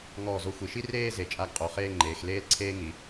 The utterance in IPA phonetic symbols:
ŋ ɔː˧˩ z o˧ xʷ i˩˧ ʃ i˥ r eː˥˧ z e˧˩ t͡ʃʼ a˥˧ ɡ qʼ o˩˧ χ eː˥˧ ŋ͡ǃ eː˩˧ x l eː˥ l ǀʰ eː˥ ŋ i˩˧

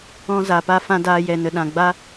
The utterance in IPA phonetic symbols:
ɔ̃˧ z a˨ p a˧ f ã˧ d aː˧ j ɛ˨ n ə˨ ɗ ã˨ ɡ͡b a˦

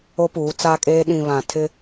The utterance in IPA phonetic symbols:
o˦ p uː˨˦ t͡s aː˦ kʼ eː˦ ɗ ĩ˨ β ã˨ tʰ ɪ˦

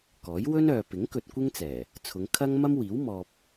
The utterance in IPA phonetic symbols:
k ɔː˨˥ j w ɵ˥ n œː˨ p ɪ˨˥ ŋ k ɵ˧ t̚ kʷ ɪ˥ ŋ t͡s ɛː˨˩ | t͡sʰ ʊ˨˧ ŋ kʰ ɐ˥ ŋ m ɐ˥ m w iː˨˥ w m ɔː˨ p̚

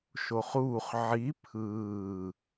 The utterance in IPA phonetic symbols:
ʃ o χ uː χ ʕ i pʰ ɯː

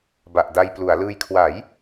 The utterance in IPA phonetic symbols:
b a˨˩ ʔ d a˧ j p l u˩˦ a̯ l ɯː˧ j kʰ w a˩˦ j

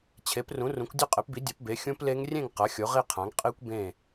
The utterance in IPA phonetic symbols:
t͡ɕʰ e˩˥ p r ũ˩˥ r ũ˩˥ kʷ dʲ ɵ˥˨ qʼ e˩˥ p b i˩˥ dʲ ɐ˩˥ p b e˩˥ xʲ ũ˦˥ p l e˦˥ ŋ rʲ ẽ˥˨ ŋ q ɐ˩˥ xʲ o˩˥ ʁ i˥˨ qʰ ã˩˥ ŋ qʼ i˦˥ kʷ b ẽ˥˨

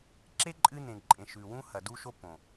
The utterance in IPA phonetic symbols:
ǁ e˦ ǃʼ ɨ˦ n ẽ˨ ǃʼ ẽ˨ ʃ ʉ˨ w ũ˦ h ɐ˨ d u˦ ʃ o˦ p õ˨

